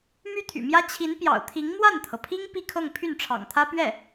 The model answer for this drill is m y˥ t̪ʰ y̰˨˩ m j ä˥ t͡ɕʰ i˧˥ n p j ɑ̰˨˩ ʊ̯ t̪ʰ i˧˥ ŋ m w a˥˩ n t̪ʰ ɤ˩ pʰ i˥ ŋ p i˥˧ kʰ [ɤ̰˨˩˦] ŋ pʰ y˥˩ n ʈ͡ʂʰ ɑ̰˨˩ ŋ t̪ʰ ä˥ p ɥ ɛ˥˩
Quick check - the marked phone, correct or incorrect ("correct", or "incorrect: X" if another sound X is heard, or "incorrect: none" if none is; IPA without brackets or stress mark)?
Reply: incorrect: ɤ˥˧